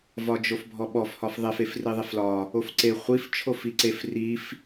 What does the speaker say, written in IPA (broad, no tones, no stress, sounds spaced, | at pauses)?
v ɒ d͡ʒ o f bʱ ɔ ɓ ɔ f h ɒ f ðˤ e f e f r i ðˤ e f l ɒ | o f ǀ e χʷ i f t͡ʃʰ o f i ǀ e f r i f